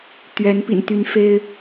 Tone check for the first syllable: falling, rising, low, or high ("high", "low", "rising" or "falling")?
rising